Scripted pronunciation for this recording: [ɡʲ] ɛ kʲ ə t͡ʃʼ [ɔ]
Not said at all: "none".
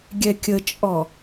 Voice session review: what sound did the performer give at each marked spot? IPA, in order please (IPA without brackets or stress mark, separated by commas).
ɡʲ, ɔ